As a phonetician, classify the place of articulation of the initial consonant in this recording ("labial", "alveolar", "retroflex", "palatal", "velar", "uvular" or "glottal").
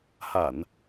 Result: glottal